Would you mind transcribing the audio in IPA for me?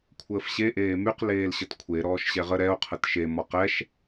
kʷʰ əː f ɕ e ʔ eː m y q l eː l ɕ ə t kʷʰ e ɾ ɔː ʃ ɕ ɛ ʁ ə ɾ ɛ o̯ qʰ ə t ʃ e m ɔ q ɛ ʃ

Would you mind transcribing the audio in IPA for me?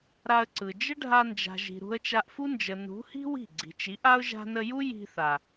ɾ a˧ ə̯ ǀ ɯ˨ d͡ʒ ə˦ ɖʱ a˧ n d͡ʒ a̤˨ ʒ i̤˨ ɾ ṳ˧ ə̯ t͡ʃ a˧ ʔ f u˦ n d͡ʒ ə˨ n ṳ˨˦ h i̤˦ w i̤˦˨ ɡ͡ǀ i̤˨ t͡ʃ i˨˦ ʔ a˦ ʊ̯ ʒ a̤˧ n ə˧ j u˦ j i̤˧ θ a˨

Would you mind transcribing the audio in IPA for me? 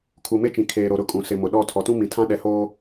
kʰ u˨ m e˦ t͡ʃ ĩ˨ kʰ eː˨ ɾ o˨ ɾ ʊ˦˨ kʼ ũ˨ s ɪ˨ m ʊ˨ ɗ ɔ˦˨ tʰ ɔ˨ t ũ˦ m ĩ˨ tʰ ã˦ ɗ ɛ˨ h oː˦

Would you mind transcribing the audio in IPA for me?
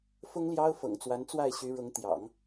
f ʊ˥ ŋ l j ɑ˥ ʊ̯ f ɤ̰˨˩ ŋ t͡s w a˧˥ n t͡s w a˥˩ ɪ̯ ɕ y˧˥ ɻ ʊ˧˥ ŋ t̪ j ɑ̰˨˩˦ ŋ

